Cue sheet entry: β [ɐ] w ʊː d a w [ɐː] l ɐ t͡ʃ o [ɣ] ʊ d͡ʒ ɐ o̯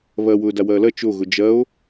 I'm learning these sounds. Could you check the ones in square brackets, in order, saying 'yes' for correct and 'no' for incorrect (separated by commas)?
yes, yes, yes